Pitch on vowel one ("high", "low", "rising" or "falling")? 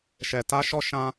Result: low